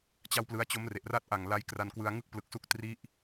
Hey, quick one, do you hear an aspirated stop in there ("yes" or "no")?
no